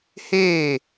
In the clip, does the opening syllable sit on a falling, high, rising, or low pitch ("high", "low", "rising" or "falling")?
falling